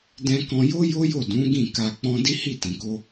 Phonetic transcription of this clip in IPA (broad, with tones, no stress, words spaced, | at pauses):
dɛ̃˧kɔ̃˧jo˦jo˦ jo˦˨dũ˨˦ ɡĩ˦˨ ka˧k͡pɔ̃˦ di˦hi˦˨tĩ˨ko˧